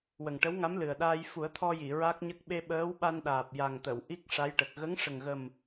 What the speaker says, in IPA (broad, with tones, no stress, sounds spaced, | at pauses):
w ə˨˩ ŋ ʈ ə˧˥ w ŋ a˧˥ m l ɨ˨˩ ə̯ ɗ aː˧ j f u˨˩˦ ə̯ t̪ʰ ɔ˧ j i˨˩˨ ɹ a˦˥ k̚ ɲ ə˦˥ k̚ ɓ e˧ ɓ əː˧˥ w ɓ a˧ n ɗ aː˨˩ p̚ j a˨˩ ŋ t̪ ə˨˩˨ w ʔ i˦˥ k̚ ʂ a˧˥ j ʈ ə˨˩ k̚ ɣ ə˧˥ ŋ ʂ ə˨˩ ŋ ɣ ə˨˩ m